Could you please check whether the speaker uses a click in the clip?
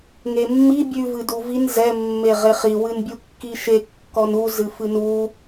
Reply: no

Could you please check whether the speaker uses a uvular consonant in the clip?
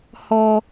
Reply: no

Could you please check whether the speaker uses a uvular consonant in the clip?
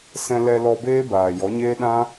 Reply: no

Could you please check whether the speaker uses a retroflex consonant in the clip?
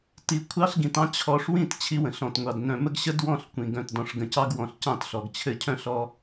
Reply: yes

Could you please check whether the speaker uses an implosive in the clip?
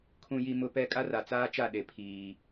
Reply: yes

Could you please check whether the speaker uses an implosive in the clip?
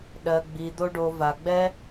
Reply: yes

